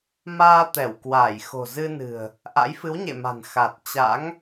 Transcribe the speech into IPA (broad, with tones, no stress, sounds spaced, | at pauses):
m aː˧ t̪ ɛ˧˩ w k w aː˧˩ j x o̤˨˩ z ɨ˧ n ɨ̤˨˩ ə̯ | ʔ a̰˧˥ j f ɨ˨˦ w ɲ ḛ˧˨ m a̤˨˩ n x a˨˩ t̚ t͡ɕ a̰˧˥ ŋ